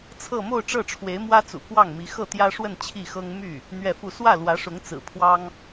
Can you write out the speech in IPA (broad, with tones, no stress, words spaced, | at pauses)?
t͡sʰɤ˥˧ mo˥˧ʊ̯ʈ͡ʂɤ˥˩ʈ͡ʂʰwe˧˥ɪ̯mwä˥ t͡sṵ˨˩kwɑ˥˩ŋmi˧˥ xɤ˥˩t̪jä˥ʂwə˥˧n t͡ɕʰi˥˩xɤ˥ŋ my˥˩ | n̪ɥɛ˥˧fu˥˧ swä˥˩lwä˧˥ʂʊ˧˥ŋ t͡sɹ̩˨˩pʰwɑ˥ŋ